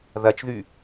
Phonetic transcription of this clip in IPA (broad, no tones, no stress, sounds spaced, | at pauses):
ð ɐ t͡ʃ ð y